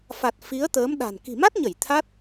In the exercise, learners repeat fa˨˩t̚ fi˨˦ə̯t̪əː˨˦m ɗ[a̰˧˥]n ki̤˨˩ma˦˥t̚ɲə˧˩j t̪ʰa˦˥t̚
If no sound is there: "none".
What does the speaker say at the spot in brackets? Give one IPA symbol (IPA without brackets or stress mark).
a̤˨˩